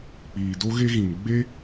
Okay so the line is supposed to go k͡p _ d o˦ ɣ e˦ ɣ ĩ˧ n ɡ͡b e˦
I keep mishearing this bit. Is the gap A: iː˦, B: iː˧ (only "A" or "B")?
B